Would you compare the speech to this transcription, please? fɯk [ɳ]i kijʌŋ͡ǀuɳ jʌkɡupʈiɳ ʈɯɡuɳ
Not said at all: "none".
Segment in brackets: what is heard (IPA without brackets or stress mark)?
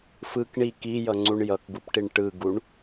ɳ